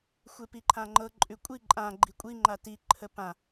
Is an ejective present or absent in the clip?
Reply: present